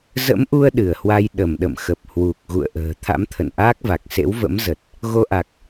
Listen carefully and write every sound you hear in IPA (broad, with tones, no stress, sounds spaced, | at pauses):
z ə̰˧˥ m ʔ u˧ ə̯ ɗ ɨ˧˩ ə̯ h w a˧ j ɗ ə˧˩ m ɗ ə̰˧˨ m x ə˨˩ p̚ h w u˨˩ k̚ ɣ ṵ˧˨ ə̯ ʔ ə̤ː˨˩ t̪ʰ a̰˧˥ m t̪ʰ ə̰˧˨ n ʔ aː˦˥ k̚ v a˨˩ k̚ s ḛ˧˥ w v ə̰˧˥ m z ə˨˩ t̚ | ɣ o˧ ʔ a˨˩ k̚